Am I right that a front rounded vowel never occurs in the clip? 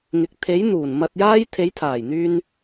no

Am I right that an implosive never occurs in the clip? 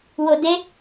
yes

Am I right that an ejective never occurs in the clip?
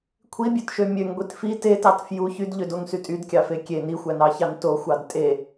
no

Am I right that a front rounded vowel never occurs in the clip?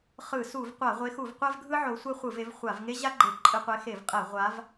yes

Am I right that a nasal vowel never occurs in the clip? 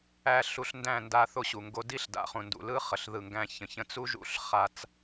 no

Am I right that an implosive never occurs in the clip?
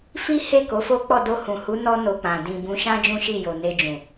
yes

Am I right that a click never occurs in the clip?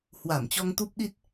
yes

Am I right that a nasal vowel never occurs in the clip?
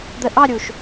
yes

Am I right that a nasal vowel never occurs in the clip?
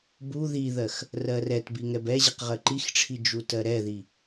yes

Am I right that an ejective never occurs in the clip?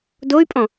no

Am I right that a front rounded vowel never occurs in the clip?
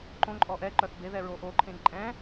no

